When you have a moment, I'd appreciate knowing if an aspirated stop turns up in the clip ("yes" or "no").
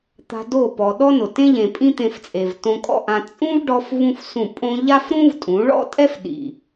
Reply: no